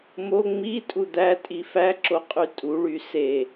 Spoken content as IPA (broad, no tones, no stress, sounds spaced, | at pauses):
m o ŋ͡m i tʼ u d̪ æ tʼ i f æ ǁ o qʼ y tʼ u ɭ y s e